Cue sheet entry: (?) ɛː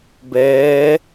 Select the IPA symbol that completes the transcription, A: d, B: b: B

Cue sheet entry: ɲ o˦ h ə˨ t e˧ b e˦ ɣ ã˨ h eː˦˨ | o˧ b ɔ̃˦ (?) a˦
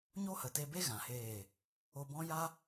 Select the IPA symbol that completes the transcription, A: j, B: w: A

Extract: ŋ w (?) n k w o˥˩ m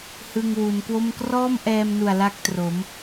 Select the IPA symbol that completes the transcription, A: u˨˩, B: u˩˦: B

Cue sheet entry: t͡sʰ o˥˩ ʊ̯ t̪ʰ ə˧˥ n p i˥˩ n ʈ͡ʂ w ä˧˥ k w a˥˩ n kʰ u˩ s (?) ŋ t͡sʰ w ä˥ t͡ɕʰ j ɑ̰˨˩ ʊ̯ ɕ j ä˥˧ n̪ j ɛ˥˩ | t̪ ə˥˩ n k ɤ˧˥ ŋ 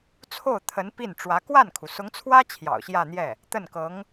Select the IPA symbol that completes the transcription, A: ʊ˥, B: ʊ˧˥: B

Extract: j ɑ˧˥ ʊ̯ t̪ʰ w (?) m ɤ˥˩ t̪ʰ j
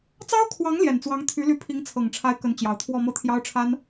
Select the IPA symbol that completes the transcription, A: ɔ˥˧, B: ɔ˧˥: A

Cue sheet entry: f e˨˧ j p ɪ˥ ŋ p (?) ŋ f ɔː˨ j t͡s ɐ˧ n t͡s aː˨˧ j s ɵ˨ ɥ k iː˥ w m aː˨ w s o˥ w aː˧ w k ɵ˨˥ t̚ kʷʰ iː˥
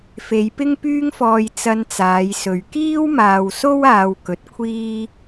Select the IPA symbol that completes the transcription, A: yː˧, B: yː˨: A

